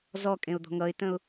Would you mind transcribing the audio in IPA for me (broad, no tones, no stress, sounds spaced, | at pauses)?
z ɔ kʼ ẽ ʊ̯ d̪ ɔ̤ ŋ ʌ ɪ̯ t ə̃ ʊ̯